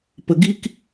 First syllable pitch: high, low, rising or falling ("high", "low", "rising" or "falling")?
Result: low